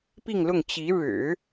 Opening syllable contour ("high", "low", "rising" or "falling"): falling